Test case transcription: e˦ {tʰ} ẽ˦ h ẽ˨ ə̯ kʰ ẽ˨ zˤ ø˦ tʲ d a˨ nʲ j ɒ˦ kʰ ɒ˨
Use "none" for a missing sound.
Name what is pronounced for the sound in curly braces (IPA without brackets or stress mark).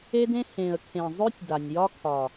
d